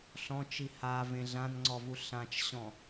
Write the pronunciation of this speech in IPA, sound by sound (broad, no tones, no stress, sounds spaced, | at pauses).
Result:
ɬ ɔ̃ t͡ʃ i h a v ẽ ɮ ã n ŋ͡ǀ ɔ v u ɬ ã t͡ʃ ɕ ɔ̃